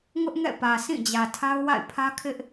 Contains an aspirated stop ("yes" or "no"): yes